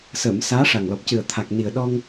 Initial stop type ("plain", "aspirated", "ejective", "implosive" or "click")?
plain